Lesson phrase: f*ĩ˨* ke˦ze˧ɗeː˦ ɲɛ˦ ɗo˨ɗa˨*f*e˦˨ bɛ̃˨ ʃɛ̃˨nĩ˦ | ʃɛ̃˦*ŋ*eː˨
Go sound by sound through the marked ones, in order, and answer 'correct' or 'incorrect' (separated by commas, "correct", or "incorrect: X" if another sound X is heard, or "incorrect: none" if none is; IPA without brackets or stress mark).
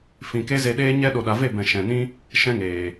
correct, incorrect: v, correct